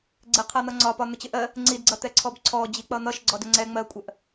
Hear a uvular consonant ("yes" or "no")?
yes